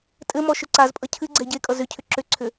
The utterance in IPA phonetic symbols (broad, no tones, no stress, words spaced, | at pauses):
tʼɘmɔ ʃʏǀazpʼʌ cʰɨɡ͡ǀɛ ɟekʼʌ zʏ cʰʏǁʏǀʰʏ